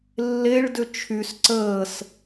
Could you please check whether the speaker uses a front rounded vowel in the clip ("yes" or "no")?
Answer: yes